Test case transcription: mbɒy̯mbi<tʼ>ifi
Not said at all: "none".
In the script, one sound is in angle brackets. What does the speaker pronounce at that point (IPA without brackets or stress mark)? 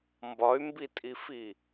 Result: tʼ